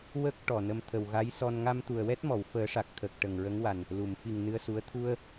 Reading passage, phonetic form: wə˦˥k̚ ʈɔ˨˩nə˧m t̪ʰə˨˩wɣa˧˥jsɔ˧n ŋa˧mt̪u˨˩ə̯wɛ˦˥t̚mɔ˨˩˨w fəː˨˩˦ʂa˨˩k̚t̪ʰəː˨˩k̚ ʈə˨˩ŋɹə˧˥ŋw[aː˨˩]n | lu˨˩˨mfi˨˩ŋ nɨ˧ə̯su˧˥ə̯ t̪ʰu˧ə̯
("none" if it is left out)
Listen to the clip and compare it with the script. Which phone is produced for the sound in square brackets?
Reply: a˨˩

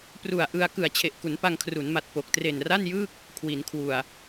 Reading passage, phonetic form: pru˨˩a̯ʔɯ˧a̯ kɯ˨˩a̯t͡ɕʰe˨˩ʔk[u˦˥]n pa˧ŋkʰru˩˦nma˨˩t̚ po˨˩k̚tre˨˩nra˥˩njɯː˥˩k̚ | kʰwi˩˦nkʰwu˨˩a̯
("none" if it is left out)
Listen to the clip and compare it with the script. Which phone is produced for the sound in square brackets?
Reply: u˩˦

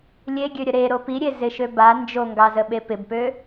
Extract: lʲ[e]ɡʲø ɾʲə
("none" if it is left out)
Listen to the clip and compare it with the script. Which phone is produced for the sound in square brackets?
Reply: e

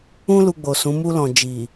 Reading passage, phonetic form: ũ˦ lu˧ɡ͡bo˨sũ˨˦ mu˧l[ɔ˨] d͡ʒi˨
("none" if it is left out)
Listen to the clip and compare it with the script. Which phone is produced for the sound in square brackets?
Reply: ɔ̃˨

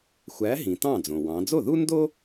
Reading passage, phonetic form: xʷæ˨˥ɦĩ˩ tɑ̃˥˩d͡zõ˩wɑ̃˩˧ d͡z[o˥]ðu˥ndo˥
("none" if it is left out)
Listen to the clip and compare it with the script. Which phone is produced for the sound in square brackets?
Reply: o˥˩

